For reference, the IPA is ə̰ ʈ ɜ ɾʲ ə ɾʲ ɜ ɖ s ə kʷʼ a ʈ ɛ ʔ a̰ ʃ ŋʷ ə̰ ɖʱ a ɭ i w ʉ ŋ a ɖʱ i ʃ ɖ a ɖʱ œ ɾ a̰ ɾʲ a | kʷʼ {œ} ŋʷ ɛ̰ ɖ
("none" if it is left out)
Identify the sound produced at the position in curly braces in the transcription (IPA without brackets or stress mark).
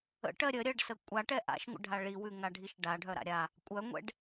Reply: œ